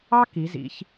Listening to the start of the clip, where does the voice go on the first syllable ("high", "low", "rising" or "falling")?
high